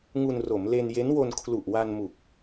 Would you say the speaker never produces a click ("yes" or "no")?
yes